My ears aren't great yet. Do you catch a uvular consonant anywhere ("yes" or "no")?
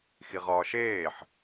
yes